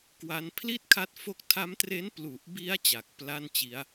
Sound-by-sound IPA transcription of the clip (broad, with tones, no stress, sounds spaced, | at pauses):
k w a˦˥ n pʰ l i˥˩ t̚ kʰ a˦˥ t̚ f o˦˥ k̚ tʰ a˦˥ m t r e˦˥ n p l u˨˩ ʔ b i˦˥ a̯ t͡ɕ a˨˩ k̚ p l a˥˩ n t͡ɕ i˦˥ a̯